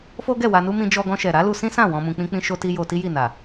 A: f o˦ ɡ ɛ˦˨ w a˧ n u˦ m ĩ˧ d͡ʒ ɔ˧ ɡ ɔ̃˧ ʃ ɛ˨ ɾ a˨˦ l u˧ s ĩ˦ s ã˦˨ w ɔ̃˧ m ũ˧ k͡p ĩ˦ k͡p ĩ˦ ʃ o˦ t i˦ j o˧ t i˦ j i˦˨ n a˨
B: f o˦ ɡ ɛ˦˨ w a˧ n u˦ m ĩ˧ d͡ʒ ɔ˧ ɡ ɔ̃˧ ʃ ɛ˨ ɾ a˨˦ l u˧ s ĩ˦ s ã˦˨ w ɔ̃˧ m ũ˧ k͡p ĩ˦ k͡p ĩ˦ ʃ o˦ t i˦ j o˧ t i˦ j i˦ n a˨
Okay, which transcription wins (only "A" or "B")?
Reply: A